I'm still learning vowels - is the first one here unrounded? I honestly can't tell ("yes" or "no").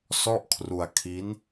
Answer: no